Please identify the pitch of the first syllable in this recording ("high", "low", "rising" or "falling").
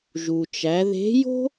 low